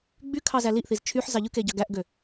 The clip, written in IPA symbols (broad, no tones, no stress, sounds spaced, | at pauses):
ɡ͡b y kʰ ɑ z æ l i ʔ θ i z t͡ʃʰ y ħ z ɑ ʎ ɯ k e ɟ ɑ ɡ æ ʔ ɡ ø